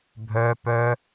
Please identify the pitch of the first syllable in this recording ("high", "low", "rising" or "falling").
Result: high